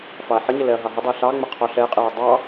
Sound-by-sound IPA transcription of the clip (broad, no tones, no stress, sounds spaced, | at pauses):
f ɑ ɐ̯ ħ ə ɲ ə l ɛ ɐ̯ ɦ ɑ ɦ ə dˤ ɛ ɬ ɑ ŋ͡m ə qʰ ɔ ɬ ɛ qʼ ɛ ɐ̯ dˤ ɑ